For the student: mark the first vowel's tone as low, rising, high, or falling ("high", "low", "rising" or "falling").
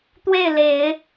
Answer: falling